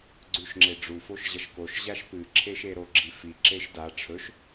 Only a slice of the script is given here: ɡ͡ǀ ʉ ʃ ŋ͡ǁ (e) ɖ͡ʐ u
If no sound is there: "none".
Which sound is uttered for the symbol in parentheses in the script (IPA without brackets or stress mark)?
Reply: e